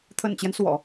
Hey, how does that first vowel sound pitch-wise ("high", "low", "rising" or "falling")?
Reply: low